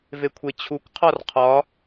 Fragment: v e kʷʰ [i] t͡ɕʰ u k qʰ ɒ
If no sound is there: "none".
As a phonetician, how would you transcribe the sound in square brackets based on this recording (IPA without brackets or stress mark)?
e